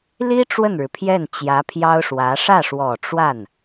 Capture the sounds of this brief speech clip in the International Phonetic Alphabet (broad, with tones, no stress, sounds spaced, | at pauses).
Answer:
l i˥ ʈ͡ʂ w ə˥˩ n ɻ ɻ̩˩ pʰ j ɛ˥˩ n t͡ɕ j ä˧˥ pʰ j ɑ˥ ʊ̯ ʂ w ä˧˥ ʂ ä˥˩ ʂ w ɔ˨˩ ʈ͡ʂ w a˥˩ n